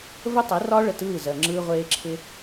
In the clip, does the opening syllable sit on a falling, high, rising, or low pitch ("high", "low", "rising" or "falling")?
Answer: high